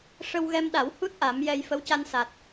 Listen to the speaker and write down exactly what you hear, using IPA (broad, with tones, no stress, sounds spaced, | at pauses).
ʂ ə˧ w ɣ ɛ˧ m ɗ a˨˩˦ w h u˦˥ t̚ ʔ a˨˩˦ m j ɛ˧ j f ə˧˥ w c a˧ n s a˨˩ t̚